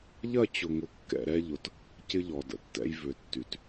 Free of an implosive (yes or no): yes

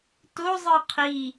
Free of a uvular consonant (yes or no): no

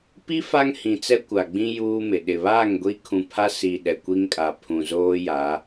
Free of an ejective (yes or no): no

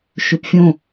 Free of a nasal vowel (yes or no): no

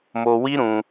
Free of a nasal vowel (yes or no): no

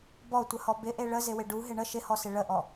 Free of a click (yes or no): yes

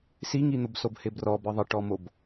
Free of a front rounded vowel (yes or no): yes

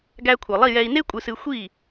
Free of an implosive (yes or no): yes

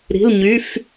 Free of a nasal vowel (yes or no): yes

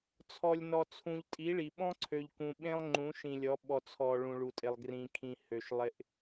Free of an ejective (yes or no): no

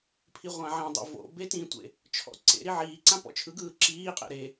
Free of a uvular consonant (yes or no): no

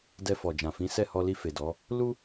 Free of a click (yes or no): yes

